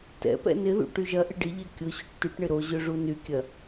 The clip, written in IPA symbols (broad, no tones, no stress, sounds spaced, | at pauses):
t ɛ̰ p ɛ̰ n ɪ ð ṵ ʈ y ʒ ɐ ʔ ɪ ɖ ɪ ʎ ɛ kʲ ʊ ɕ ṵ ʈ t y ʈ ɳ ɪ ɾ o ʑ ø ʐ u n y kʲ ɐ